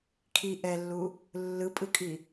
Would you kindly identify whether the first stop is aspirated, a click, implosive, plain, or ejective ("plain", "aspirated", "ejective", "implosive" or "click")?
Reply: aspirated